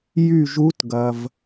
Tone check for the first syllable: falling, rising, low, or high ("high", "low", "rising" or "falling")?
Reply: falling